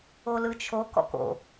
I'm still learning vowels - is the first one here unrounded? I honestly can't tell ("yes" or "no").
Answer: no